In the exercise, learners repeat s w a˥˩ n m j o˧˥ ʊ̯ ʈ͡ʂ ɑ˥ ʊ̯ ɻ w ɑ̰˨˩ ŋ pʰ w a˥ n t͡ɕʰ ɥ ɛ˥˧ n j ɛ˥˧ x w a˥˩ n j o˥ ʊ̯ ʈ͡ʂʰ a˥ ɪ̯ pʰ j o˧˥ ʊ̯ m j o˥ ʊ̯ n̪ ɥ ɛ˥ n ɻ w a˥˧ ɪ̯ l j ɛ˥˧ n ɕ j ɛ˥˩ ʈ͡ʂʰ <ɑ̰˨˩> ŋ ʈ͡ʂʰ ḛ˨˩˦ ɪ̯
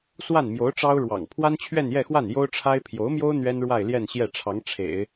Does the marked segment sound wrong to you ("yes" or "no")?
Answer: yes